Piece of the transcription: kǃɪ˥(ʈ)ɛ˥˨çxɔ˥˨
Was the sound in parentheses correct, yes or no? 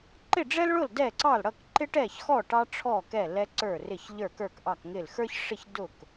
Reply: yes